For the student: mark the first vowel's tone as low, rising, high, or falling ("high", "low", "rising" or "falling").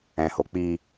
low